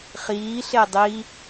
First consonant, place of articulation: uvular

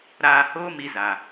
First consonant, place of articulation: alveolar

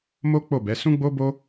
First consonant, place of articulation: labial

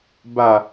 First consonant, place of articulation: labial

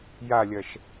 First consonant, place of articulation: palatal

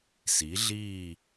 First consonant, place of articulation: alveolar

